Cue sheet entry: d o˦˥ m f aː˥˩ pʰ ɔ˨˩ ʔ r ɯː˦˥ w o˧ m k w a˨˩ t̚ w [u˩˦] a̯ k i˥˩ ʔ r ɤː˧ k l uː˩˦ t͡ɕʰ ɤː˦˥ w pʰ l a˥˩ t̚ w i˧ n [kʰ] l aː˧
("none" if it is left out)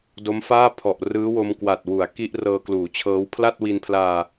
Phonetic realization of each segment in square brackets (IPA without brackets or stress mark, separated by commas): u˩˦, pʰ